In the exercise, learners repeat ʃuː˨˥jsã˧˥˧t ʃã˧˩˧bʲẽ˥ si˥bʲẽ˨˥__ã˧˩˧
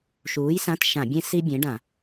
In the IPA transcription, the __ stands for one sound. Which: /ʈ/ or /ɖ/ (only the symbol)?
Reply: ɖ